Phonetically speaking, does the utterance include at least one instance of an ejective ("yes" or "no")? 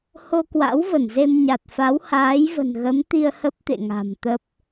no